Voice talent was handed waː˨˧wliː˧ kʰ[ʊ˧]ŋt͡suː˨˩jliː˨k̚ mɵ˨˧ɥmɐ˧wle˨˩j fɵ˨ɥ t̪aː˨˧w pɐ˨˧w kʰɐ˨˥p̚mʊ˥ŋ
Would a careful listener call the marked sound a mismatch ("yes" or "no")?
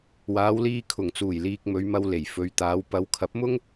yes